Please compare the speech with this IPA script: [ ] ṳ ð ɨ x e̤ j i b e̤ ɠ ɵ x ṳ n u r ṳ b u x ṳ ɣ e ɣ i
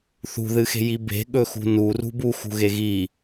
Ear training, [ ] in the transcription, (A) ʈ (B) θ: B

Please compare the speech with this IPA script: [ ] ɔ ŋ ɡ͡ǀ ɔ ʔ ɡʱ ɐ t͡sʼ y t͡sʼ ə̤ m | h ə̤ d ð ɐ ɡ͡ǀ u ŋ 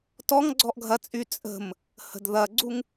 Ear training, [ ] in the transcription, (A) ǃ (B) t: B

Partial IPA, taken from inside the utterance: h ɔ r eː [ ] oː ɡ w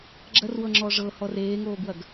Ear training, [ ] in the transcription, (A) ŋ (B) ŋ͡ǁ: A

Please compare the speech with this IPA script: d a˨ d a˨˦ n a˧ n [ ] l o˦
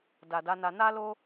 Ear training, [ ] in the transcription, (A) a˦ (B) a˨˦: A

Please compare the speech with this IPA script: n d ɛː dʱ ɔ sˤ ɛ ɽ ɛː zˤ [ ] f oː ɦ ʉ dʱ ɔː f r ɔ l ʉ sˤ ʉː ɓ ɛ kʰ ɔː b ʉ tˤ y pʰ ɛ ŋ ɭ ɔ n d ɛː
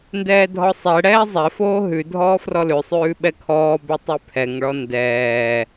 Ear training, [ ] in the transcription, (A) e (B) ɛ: B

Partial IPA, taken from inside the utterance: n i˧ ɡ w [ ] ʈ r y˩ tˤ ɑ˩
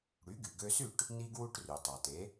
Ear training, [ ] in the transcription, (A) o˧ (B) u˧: B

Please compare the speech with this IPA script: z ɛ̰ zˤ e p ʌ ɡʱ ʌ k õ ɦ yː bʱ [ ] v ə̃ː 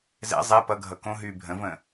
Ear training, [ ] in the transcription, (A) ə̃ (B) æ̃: A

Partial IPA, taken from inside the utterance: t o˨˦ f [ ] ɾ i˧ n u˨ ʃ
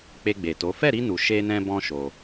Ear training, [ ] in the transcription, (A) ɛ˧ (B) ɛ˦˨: B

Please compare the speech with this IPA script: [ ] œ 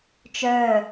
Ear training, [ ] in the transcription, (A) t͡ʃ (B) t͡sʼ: A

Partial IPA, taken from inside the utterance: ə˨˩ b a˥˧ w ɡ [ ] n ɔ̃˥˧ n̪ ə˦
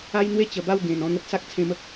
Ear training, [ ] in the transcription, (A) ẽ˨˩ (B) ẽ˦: A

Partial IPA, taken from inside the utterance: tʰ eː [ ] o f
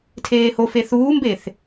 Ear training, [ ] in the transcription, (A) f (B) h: B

